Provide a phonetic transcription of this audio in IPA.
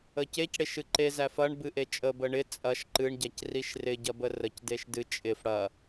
ə c e c ɽ e ʃ ɨ ǃ e z æ f ɐ ɳ b ɨ ʔ e t͡ʃʼ ə b ə ɳ ɪ t͡sʼ ɐ ʃ ǃ ɨ ɳ ɟ æ c r i ʃ r ɪ ɟ ɐ b ə r ə c d e ʃ d ɨ t͡ʃʼ ɪ f ɽ ɐ

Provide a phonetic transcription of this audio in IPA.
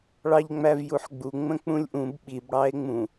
ɭ ɑ ʎ ŋ͡m æ v j u ħ ɡ͡b u ŋ͡m ə̃ k͡p ũ lʲ ʔ ũ b ɓ i b ɽ ɑ e̯ ŋ͡m ũ

